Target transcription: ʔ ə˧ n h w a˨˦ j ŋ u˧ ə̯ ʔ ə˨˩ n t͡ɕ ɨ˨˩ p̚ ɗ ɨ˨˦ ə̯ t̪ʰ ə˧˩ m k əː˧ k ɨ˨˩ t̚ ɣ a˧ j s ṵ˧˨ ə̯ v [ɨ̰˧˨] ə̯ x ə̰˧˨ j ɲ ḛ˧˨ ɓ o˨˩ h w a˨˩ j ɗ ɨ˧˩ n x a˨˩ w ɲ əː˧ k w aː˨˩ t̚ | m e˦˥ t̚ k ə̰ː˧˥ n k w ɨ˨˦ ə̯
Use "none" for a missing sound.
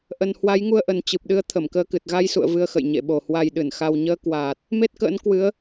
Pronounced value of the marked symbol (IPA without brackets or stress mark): ɨ˧